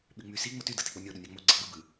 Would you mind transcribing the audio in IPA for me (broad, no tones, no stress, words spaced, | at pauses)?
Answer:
ɓyŋ͡mysi ŋ͡moty dɯtik͡ponʲo ɗunʲɑŋ͡mo ɡ͡ǀeɡ͡bɯ bɯ